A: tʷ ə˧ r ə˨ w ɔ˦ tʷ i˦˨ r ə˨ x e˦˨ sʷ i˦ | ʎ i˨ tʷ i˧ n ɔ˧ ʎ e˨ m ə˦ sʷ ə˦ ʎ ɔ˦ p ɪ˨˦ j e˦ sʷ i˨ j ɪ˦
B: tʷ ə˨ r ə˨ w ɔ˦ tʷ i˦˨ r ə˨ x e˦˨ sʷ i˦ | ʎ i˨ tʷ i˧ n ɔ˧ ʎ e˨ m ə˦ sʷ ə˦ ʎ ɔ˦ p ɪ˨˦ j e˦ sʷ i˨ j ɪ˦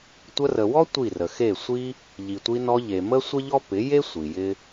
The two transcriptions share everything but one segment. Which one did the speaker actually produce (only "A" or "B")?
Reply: A